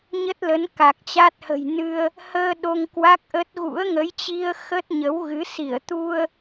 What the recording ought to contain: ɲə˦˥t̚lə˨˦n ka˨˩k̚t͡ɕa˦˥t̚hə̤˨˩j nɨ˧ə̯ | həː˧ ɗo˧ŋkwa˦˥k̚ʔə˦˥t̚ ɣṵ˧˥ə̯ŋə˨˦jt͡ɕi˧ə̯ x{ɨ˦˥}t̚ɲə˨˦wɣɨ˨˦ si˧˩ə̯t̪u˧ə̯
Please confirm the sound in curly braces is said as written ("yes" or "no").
no